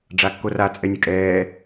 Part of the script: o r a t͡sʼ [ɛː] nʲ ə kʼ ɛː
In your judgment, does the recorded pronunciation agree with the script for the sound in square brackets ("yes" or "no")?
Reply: no